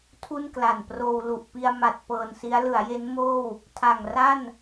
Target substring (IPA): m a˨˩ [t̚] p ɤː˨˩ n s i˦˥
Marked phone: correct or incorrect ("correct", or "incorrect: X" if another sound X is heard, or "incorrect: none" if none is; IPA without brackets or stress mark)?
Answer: correct